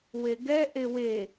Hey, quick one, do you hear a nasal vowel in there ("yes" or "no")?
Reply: no